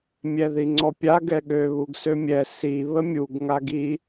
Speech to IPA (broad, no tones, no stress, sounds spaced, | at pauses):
mʲ ɛ ð i ŋ͡ǀ ɔ pʲ a ɡ ɛ ɠ ø β u ɡ s ø mʲ ɛ s i β ə mʲ u ɡ ŋ a ɡ i